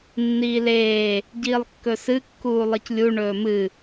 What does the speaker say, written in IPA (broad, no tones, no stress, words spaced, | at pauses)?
nːiːleː | ɟiːlˠkːɵsɨ kːuːlˠɨclʲu ɳɵːmɨ